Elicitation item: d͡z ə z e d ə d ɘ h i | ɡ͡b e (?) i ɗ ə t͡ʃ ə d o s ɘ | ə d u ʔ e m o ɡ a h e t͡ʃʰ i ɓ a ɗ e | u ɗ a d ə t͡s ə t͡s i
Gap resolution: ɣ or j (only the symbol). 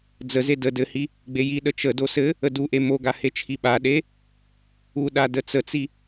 j